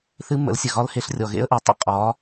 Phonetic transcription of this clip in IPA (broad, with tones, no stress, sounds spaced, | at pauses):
θ ɨ˦˥ mː ə̰˨˦ l sʲ ə˨ ɣ ɒ˦˥ l h e˨˦ ɬ rʲ ɔ˨ ɣ ḛ˦˥ ə̯ ʔ ɨ˨˦ tˤ ə̰˦˥ qʼ ɒ˨˦